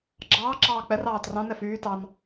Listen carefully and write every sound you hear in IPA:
ɡ͡ǁ ɑː ǁ ɑː k͡p ɛ r ɑː t r ɑ̃ n ɛ f yː t ɑ n

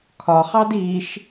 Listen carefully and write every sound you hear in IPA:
kʰ ɒ χ ɑ d i ʃ

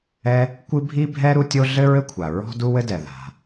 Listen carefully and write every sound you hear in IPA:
ɛ˥ | kʷ ɨ˥ bʱ i˥ bʱ ɛ˥ ɾ u˥ tʲ o˥ ɮ ɘ˥ ɹ ɘ˥ kʷʰ a˩ ɹ ɔ̤˥ d u˥ w ɘ˥ d ɛ˩ ð a̤˩

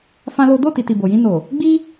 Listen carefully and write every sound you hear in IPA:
f ã˦ l o˦ d o˦˨ t i˨ t i˨ b o˨ j ĩ˧ n o˨ | ɡ͡b i˦

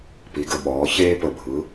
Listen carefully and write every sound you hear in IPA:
p i˩˧ ɡ ə˨˩ ɓ ɔː˩˧ ç eː˧ p ə˨˩ bʱ ɯ˩˧

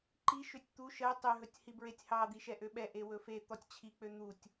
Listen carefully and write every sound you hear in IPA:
ǃ i ʃ ø tʲ t̪ u ʃ ɜ tˤ ø ɦ ɵ tʲ h i b ɹ e tʲ h ɑ d̪ i ʃ ɛ ʔ ø ɓ ɛ ʔ e w ɵ f e t̪ ɔ tʲ t͡ɕʰ i k͡p ø n̪ u tʲ

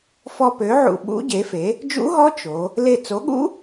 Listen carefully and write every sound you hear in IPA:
f ɔ˧ p ø˩˥ ʕ ṵ˧˩ ɓ ṵ˦˥ ɟ e˩˥ f e˩˥ | d͡ʒ ṵ˦˥ ɦ ɔ˦˥ t͡ʃ o˩˧ | l e˧˩ t͡s o˩˥ ɠ ṵ˦˥

